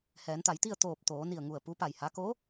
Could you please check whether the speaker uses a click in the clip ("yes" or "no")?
no